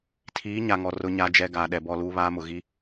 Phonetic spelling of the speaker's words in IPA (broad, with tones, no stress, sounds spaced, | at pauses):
tʰ iː˨˦ ɲ a˨ ŋ ɔ˨ r ʊ˦ ɲ a˦ d͡ʒ ɛ˦ ɡ aː˨ ɗ ɛ˨ b ɔ˦˨ l uː˦ β aː˦ m ʊ˨ ɣ i˦